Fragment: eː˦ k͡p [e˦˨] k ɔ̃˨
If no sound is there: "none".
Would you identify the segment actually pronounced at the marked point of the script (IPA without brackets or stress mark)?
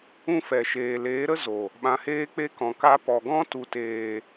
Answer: e˦